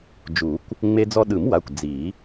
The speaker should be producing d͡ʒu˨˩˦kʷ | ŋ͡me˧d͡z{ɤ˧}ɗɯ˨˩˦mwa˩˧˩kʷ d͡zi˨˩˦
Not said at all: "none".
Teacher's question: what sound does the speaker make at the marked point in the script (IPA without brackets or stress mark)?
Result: ɔ˧